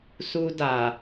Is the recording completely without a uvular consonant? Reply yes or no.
yes